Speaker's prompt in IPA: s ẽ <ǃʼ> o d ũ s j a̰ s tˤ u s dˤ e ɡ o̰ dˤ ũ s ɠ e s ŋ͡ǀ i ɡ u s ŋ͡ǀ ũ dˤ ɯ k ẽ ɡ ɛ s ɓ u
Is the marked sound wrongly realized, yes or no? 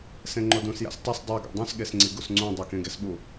yes